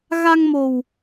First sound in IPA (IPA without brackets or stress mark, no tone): ɣ